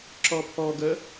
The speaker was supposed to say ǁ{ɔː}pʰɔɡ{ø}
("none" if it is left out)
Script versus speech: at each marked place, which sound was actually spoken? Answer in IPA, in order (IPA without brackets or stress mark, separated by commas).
ɔ, ə